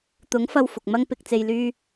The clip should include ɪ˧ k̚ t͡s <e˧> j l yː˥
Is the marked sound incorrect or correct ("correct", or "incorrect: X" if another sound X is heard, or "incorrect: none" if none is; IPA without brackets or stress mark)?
correct